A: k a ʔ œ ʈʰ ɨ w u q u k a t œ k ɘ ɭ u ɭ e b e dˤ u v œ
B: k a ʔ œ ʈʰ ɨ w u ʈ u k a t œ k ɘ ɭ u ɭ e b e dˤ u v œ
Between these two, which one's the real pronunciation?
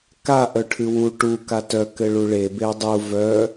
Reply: B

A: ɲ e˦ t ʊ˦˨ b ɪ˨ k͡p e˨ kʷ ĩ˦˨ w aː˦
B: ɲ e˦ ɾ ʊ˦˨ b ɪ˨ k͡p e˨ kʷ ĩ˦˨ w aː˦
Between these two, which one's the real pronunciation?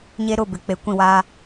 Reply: B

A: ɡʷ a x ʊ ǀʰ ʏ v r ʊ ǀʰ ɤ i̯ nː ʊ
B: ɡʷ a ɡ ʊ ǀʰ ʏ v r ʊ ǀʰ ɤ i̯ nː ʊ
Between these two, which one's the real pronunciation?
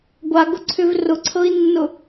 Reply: B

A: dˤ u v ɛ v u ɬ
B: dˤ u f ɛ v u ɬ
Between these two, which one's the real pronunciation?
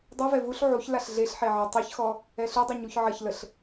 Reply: A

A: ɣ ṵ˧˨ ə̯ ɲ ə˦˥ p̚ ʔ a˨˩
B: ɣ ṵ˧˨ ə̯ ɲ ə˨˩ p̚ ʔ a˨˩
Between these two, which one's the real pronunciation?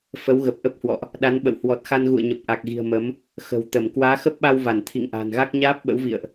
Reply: B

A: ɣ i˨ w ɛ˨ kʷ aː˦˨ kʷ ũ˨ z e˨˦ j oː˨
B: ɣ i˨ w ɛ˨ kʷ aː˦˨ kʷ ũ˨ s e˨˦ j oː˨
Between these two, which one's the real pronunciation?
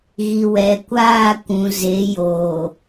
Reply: A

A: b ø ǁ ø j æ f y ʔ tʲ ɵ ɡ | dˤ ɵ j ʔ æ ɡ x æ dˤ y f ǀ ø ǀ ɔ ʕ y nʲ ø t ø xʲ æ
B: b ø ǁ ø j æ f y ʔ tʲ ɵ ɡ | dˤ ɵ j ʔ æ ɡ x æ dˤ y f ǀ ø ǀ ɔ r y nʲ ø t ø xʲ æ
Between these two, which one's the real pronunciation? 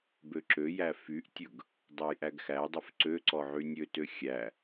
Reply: A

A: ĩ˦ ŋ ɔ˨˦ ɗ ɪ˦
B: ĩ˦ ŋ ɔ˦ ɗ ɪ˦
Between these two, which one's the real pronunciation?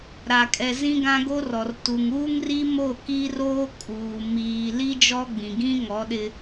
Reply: A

